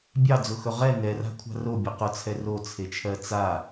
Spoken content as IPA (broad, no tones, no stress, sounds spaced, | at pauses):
bʲ ɑ d͡z ʊ x ɵ ʁ ɛ n ɛ r a̤ kʷʰ a̤ r o bʲ ʊ q ʊ t͡sʰ ɛ r o t͡sʰ e t͡ʃʰ ɜ t͡s a